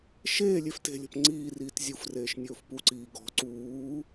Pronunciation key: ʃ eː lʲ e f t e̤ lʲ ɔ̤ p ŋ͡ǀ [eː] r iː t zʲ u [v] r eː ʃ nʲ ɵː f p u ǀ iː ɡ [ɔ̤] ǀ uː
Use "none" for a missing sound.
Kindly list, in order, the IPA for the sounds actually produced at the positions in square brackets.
iː, f, ɔ̤

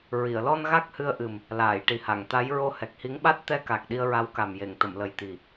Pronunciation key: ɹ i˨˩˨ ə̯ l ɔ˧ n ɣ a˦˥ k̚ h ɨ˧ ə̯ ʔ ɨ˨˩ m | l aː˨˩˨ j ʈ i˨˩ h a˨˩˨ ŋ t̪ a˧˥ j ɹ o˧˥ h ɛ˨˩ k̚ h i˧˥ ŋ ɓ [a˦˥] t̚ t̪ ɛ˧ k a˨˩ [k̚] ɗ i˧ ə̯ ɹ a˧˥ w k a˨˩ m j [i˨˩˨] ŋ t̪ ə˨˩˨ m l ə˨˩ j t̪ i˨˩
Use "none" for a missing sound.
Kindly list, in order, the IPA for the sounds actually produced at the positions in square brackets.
a˦˥, k̚, e˨˩˨

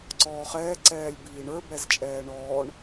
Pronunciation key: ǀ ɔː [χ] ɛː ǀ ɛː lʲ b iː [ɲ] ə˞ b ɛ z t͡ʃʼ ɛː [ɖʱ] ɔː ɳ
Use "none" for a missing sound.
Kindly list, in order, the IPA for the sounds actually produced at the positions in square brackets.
χ, ɳ, ɳ

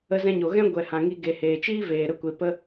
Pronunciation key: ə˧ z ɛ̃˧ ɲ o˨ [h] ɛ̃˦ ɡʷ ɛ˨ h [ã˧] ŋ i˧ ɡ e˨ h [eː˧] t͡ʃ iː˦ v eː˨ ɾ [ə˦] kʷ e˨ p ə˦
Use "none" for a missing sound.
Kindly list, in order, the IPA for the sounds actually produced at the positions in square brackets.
ɣ, ã˨, eː˨, ə˧

